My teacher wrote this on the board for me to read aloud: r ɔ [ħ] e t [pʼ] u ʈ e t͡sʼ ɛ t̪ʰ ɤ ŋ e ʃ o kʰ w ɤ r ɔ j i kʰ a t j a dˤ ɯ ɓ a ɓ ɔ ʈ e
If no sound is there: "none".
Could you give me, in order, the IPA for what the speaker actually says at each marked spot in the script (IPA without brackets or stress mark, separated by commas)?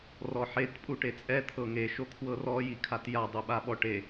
ħ, pʼ